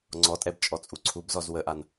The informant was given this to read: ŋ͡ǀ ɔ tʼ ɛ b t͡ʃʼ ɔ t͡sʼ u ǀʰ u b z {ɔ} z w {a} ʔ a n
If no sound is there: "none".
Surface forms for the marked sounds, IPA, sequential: ɔ, ə

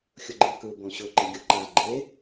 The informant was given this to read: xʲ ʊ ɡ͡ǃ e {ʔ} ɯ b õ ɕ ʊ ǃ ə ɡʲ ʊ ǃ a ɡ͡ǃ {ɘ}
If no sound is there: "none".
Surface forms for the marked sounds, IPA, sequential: k, e

